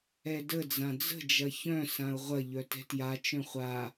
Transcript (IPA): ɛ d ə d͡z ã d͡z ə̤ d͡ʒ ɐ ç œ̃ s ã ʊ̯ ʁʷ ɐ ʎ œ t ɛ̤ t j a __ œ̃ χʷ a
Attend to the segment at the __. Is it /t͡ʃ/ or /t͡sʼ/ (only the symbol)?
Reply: t͡ʃ